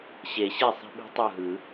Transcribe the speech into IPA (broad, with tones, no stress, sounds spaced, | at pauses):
ɕ e˨˩˦ ɕ e˥˩ sˤ i̤˦ ɓ i̤˦ tˤ u˥˩ ɦ ɯ˨˩˦